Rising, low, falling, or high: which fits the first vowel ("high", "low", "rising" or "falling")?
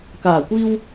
low